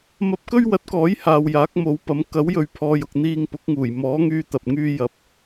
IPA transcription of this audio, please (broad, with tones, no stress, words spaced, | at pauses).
mɐ˧p̚kɵ˥ɥwɐ˨˥t̚kɔː˨˥j haː˨wjaː˨˥k̚mo˨˥wpɐ˨˥m kɐ˨˥wjɵ˨ɥpʰɔː˨jʊ˨k̚ n̪iː˧ŋ pʊ˨˥k̚ŋuː˨˩j mɔː˨˥ŋyː˧ t̪ɐ˨p̚ ŋyː˧jɐ˨p̚